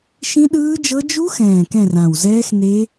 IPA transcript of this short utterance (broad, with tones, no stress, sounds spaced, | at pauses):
ʃ ĩ˦˥ ɗ ɯː˦˥ d͡ʒ ɤ˦˥ d͡ʒ u˦˥ x ɛ̃ː˨˩ k ɛ̃˦˨ r ã˨˩ w z ɛː˦˥ x n e˦˥